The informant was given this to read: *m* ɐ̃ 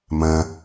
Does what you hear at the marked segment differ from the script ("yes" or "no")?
no